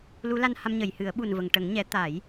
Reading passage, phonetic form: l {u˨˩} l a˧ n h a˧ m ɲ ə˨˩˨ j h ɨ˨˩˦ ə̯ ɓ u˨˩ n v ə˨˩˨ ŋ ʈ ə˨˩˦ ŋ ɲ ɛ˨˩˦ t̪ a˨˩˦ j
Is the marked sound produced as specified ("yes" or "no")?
no